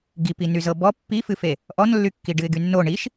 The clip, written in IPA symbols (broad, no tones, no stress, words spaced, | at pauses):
ɡipi nyzɤbɔ pːifɨfe | ʔɔnlːykːi ɖɨɪ̯ɡynːo ɳiʃ